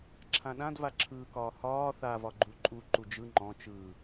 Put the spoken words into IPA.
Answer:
ǁʰãɗãdva ǁʰɯːkɒːhɒː θa vɒɡ͡ǃuǃʼu ǃud͡ʒɯ ŋ͡ǃɔ̃ t͡ʃɯː

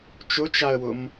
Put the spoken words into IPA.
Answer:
t͡ʃʊt͡ʃaə̯wʊm

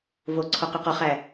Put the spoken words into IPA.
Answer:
vo ǀʰɔqyqɔχæ

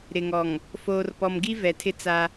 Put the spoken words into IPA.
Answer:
ɾɪ˨ŋɔ˨ŋ | foː˨rpɔ˨mɡi˦ vɛ˨tʰɪ˦t͡sa˦

